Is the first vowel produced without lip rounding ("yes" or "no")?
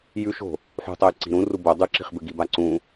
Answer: no